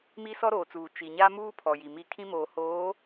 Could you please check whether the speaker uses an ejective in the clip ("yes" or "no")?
no